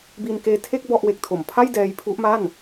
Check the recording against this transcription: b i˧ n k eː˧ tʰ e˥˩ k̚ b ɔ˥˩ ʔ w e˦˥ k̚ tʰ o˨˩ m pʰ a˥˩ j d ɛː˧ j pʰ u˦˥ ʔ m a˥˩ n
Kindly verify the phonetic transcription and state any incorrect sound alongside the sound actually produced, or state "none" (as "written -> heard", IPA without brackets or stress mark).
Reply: none